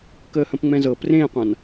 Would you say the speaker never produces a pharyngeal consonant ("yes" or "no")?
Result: yes